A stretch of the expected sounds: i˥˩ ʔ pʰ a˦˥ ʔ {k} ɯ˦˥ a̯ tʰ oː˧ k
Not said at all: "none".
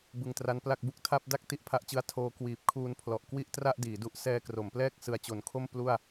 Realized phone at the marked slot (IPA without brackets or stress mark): t͡ɕ